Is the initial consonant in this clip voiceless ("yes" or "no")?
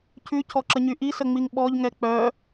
yes